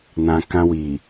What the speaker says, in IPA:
nã˨ kã˧wi˨

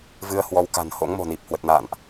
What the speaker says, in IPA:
vɨ˧ə̯ hwɔ˧wka̤˨˩n ho̰˧˥ŋmo̤˨˩ni˨˩p̚ hwə˨˩t̚na̰ː˧˨nʔ

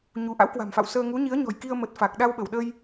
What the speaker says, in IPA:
ɲu˨˦ ʔa̰˧˥wkwa̤˨˩mfa̰˧˨wsəː˧ ŋu˨˦ɲi˨˦ə̯ɲɔ̤˨˩jki˧ə̯ mə˨˩t̚ fa˨˩k̚ ɗa˧w ɓə˧˩wɗə˧j

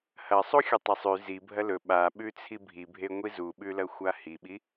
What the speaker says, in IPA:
hɐ sˤuxʲɵtˤɐsˤʉ zi bʱɐlɵ ɓaɓʉt͡sʰi bʱibʱeŋʷi zuɓʉlɐ xʷahiɓi

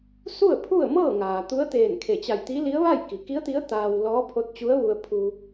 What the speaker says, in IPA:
su˥˨ə̯pʰu˥˨ə̯mɤː˥˨ŋaː˩ t̪u˧˥ə̯t̪eː˧˩nkʰe˧˩t͡ɕa˧˩j t̪i˧˥li˧˥ə̯ʋa˥˨j ki˩˧ki˧˥ə̯t̪i˧˥ə̯ t̪aː˧w lɔː˧˥pʰo˧˥t̚t͡ɕu˧˥ə̯ʋu˧ə̯ pʰu˧

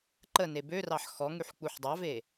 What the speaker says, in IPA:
ǃəne børɑħ xɔŋyħ k͡puħdˤɑve

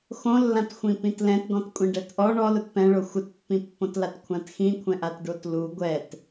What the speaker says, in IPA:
xõlːãtxʷĩ pĩtlɛ̃tɡɔ̃t kʷʼĩɖɛtʔɔ ɳɔlʊt pɛ̃ɭo xʷɪtpːĩpːõtlat kʷʰãtxĩkʷʰɛ̃ʔat ɖotlu ɡʷɛt

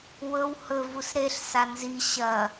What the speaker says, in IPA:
wɵw hɵvus ɾeɬsa nzi ɕɐ

